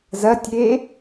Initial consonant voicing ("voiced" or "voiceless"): voiced